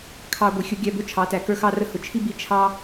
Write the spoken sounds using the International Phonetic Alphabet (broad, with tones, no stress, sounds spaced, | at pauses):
kʰ ɑ˧ ɡʷ i˨ xʲ ʊ˦ ɡʲ æ˧ b ʊ˦ t͡ʃʰ ɑ˨˦ t æ˨ k ə˞˦ x ɑ˦ r ə˧ h ʊ˨ t͡ʃʰ i˦ b i˧ t͡ʃʰ ɑ˦